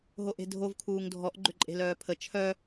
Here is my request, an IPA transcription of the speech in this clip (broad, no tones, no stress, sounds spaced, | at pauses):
ɦ o ʔ e̤ dʱ o v kʰ uː ŋ dʱ ɔ ʔ ɡ͡ǃ ʏ ǃʼ e̤ l œː pʰ ə t͡ʃʰ œ